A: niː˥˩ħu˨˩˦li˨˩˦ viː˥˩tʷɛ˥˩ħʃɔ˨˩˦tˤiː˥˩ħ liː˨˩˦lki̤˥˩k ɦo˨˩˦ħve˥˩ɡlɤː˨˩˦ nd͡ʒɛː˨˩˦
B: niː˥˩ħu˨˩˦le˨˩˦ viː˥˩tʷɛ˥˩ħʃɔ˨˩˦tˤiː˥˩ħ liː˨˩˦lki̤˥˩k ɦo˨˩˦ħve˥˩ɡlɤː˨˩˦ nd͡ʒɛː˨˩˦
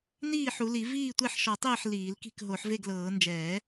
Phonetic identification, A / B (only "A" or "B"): A